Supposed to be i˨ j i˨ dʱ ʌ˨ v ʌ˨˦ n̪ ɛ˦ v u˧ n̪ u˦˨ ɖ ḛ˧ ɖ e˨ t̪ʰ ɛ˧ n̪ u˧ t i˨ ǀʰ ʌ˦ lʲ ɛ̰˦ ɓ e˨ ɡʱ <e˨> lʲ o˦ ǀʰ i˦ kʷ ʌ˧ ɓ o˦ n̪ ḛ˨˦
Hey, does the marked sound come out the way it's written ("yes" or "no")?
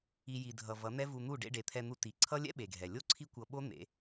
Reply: no